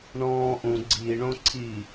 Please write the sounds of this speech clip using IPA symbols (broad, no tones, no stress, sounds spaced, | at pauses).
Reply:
ɳ ɔ̃ː ʔ ũ ɡ͡ǀ iː ɳ õ ǀʰ i